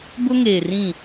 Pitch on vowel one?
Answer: high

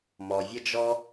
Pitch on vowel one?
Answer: low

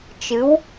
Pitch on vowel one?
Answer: rising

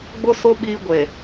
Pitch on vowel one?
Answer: high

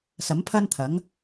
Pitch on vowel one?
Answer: rising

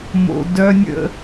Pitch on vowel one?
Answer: low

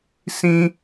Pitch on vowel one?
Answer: high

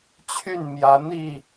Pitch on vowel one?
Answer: falling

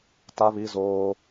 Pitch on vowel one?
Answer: high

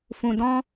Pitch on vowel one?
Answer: low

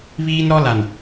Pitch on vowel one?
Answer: high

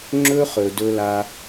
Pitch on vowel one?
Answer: high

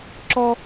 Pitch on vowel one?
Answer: high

